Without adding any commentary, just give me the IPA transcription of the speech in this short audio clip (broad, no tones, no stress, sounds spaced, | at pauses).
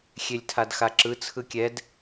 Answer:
xʲ e lʲ tʰ a d x a ǁ ɯ t͡sʰ ɯ kʲ ɛ d